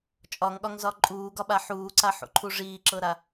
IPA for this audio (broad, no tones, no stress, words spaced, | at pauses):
t͡ʃʼɒŋɠɒŋzɒ ǃʼuːɡɒɓa ħuːǀaħṵǃʰu ʐiːǁɤɾa